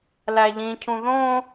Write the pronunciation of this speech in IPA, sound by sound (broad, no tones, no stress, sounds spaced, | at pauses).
l æ ʎ ĩ cʰ ũ ð õ